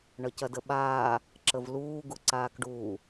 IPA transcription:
ɳ ʌ c ɐ d ə ɓ aː | ǁ ə v l uː ɡ u ǀ aː k ɖ uː

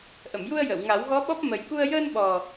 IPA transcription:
ʔ ə˨˩˨ m j u˧ ə̯ j ə˨˩˨ w ŋ a˨˩˦ w ɣ ɔ˧˥ ɓ ɔ˦˥ p̚ m ə˨˩ j k u˧ ə̯ j əː˧ n ɓ ɔ˨˩

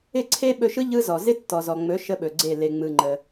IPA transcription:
ɪ˦˨ ǀʰ e˦ ɓ ɵ˧ ʃ ɯ˦ ʎ ɯ˦ z ɔ˨ z ɪ˦ tː ɔ˨ z ɔ˨ ŋ͡m ɵ˨˦ ʃ ə˦ ɓ ɵ˨ ɡ͡ǀ e˦˨ l e˧ ŋ͡m ɯ˧ ŋ͡ǃ ə˧

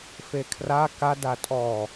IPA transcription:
f e kʰ r a k a d a tʼ ɔ

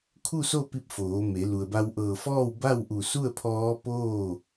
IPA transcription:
kʰ u˥˨ s o˥˨ p i˧ p̚ f oː˩˧ m e˩˧ l u˩ ə̯ b a˧ w ʔ ɤː˧˩ f ɔː˥˨ w b a˥˨ w ʔ u˧˩ s u˥˨ ə̯ pʰ ɔː˧˥ p oː˥˨

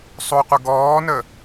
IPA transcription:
sˤ o qʷ ə ɡ ɔː n ə

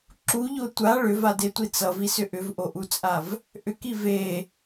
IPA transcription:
ǁ u ʎ o tʷ a ɭ ʏ v a d e tʷ i t͡s ʌ v i s ʏ ʔ ʏ v ʔ o ʔ u t͡sʼ a v | ʔ ʏ k i v e

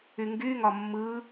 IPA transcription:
y ŋ ɡ y ŋ ɒ mː ɯ

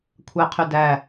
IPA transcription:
kʷʰ æ qʰ y d æ

